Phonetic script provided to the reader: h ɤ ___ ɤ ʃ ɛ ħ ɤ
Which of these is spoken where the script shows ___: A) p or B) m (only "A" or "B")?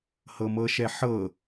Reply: B